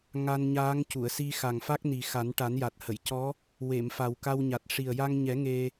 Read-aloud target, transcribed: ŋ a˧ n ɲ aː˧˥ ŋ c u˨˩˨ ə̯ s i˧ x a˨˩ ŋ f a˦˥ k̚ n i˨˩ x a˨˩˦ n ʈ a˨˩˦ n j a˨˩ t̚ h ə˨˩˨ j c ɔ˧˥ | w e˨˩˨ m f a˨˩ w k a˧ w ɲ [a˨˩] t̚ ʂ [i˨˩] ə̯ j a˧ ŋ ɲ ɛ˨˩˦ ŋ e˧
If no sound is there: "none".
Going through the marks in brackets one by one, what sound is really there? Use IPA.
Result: a˨˩, i˨˩

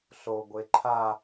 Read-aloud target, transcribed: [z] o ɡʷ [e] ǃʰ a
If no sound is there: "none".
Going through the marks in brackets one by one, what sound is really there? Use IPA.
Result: ɬ, e

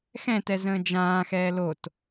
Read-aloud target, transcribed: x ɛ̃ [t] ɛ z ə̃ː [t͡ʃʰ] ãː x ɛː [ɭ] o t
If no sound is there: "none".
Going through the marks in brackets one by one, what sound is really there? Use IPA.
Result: t, d͡ʒ, l

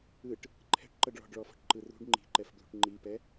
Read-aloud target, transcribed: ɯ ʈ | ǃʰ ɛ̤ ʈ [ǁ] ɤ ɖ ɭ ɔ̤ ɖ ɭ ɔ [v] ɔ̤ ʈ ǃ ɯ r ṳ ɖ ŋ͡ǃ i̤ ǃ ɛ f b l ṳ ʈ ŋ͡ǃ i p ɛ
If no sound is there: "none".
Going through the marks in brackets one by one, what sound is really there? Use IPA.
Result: ǃ, f

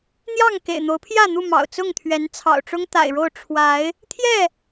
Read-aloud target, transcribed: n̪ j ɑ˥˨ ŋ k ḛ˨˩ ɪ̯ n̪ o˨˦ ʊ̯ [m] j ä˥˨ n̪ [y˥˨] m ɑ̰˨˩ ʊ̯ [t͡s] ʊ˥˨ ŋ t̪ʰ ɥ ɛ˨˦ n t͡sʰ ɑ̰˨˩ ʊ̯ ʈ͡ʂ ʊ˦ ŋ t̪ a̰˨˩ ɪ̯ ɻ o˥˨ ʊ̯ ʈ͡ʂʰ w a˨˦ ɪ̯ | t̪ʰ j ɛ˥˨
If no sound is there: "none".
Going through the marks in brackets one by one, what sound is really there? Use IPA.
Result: pʰ, u˥˨, t͡s

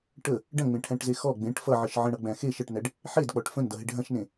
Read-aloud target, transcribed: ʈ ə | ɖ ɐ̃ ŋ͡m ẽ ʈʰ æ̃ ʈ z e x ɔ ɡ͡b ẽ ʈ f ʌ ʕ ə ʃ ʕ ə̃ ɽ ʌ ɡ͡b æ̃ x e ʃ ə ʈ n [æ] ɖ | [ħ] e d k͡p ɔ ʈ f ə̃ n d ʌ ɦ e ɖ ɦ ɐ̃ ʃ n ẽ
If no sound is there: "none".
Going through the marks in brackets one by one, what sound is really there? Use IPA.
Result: æ, ħ

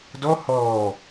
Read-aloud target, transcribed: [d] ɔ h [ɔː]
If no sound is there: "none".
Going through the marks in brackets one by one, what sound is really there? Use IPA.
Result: d, ɔː

